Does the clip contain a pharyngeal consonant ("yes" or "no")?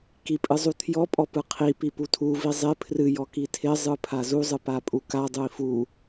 no